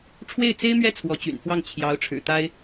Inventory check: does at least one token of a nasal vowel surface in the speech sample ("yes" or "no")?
no